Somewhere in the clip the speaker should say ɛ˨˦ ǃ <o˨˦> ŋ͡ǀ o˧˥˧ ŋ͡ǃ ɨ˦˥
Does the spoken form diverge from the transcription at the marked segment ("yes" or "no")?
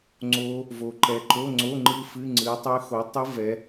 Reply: yes